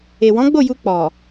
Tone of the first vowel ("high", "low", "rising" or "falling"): low